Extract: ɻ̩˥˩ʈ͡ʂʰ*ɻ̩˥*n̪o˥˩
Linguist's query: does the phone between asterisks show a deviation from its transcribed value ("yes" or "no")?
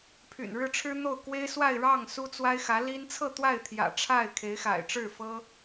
no